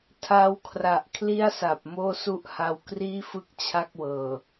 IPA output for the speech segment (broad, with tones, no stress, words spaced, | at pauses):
tʰaː˧wkʰra˨˩ʔ kʰli˥˩a̯sa˨˩p̚ moː˥˩su˥˩ʔha˧w kriː˥˩fɯ˥˩k̚ t͡ɕʰa˥˩k̚wɤː˨˩